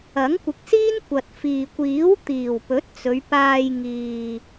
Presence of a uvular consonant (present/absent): absent